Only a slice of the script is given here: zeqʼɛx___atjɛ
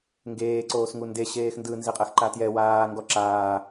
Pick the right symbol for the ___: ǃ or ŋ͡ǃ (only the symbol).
ǃ